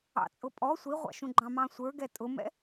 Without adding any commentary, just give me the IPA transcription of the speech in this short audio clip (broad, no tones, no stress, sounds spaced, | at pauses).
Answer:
ɑ̰ t͡sʼ ʊ pʼ ɔ sʷ i ʁʷ ɑ̰ ʃ ũ ɡ͡ǃ ɑ̃ m ɑ̃ sʷ ə˞ ɡ ɛ tʼ ʊ m ɛ̰